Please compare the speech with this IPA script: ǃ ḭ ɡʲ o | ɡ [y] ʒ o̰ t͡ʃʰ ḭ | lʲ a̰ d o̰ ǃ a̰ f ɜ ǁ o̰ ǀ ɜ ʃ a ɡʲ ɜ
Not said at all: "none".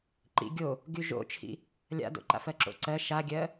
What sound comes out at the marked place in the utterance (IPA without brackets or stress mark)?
y